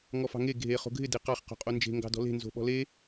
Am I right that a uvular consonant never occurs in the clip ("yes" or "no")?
no